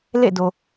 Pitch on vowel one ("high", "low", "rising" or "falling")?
falling